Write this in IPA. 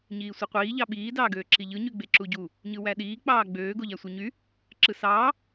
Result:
ɲ iː sʷ ɯ qʷ iː ʎ ɑ ɓ iː d ɑː ɡ øː ǁ i ʎ ɯ ɲ y ɡ͡b e ǁ u ɟ u | ɲ ɯ w æ ɗ iː k͡p ɑː ɡ͡b øː ɡ o ʎ æ sʷ ɯ ɲ y | ǁ ɯ s ɑː

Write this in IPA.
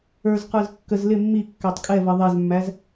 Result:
ə˞ z q ə˞ z kː ə z l ɪ mː i kː æ tˤ kʼ ɛ v ʌ ðˤ ɛ z mː æ z

